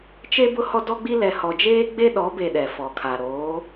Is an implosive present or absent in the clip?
present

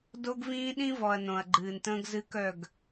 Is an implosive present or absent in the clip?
present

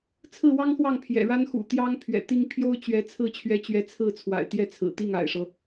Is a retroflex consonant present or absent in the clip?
present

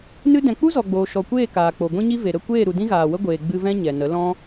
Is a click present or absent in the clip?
absent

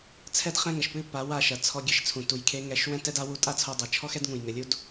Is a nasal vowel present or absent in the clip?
present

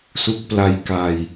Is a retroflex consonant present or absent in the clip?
absent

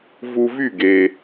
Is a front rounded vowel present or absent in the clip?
present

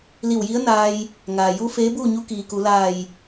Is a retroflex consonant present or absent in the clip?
absent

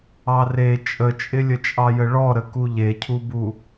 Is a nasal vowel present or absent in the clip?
absent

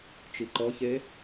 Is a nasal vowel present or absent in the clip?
absent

